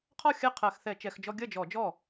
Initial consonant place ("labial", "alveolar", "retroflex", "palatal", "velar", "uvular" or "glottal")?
uvular